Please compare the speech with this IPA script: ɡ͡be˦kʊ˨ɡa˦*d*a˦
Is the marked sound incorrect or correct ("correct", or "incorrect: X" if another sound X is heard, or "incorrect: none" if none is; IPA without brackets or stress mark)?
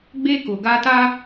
incorrect: t